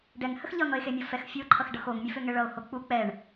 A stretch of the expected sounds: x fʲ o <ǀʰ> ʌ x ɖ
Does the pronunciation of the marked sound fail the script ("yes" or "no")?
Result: yes